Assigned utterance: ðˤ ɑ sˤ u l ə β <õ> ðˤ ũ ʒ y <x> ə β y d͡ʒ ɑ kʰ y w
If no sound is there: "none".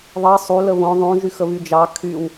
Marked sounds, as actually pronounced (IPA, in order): õ, x

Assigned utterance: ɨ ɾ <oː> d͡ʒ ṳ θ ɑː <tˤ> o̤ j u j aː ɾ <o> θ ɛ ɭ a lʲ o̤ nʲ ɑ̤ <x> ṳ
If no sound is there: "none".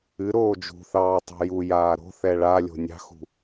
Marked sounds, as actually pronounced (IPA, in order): oː, tˤ, o̤, x

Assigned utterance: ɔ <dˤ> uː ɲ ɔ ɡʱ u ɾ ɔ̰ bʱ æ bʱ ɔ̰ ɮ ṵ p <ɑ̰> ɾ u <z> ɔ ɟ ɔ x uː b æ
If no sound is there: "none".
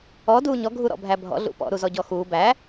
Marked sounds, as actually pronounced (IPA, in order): d, ɔ̰, z

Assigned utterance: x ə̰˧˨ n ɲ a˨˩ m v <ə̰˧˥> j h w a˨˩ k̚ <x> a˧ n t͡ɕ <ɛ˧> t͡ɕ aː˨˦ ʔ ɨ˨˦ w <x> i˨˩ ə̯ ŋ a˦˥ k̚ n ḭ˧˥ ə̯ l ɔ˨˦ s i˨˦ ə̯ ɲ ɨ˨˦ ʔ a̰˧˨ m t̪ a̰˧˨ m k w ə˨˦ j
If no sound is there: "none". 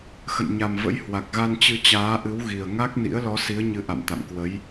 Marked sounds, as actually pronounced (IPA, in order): ə̰˧˥, ɣ, ɨ˧, ɣ

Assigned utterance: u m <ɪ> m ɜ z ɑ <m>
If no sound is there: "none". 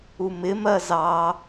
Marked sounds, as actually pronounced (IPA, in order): ɪ, none

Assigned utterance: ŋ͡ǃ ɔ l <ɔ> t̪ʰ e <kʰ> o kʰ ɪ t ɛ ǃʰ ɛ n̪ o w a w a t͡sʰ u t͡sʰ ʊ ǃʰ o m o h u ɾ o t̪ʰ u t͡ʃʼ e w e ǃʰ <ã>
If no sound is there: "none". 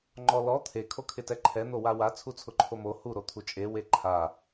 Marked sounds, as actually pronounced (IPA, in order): ɔ, kʰ, a

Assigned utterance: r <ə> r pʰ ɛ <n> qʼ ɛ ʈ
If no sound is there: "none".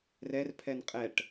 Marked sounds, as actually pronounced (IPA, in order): ɛ, n

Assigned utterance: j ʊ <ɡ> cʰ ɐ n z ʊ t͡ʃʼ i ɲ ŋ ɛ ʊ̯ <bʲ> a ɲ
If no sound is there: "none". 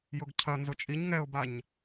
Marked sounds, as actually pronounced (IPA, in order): ɡ, b

